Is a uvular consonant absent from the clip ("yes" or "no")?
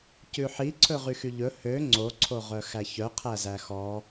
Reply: no